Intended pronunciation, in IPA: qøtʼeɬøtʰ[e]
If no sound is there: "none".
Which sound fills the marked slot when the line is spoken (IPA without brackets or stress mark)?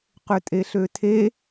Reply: e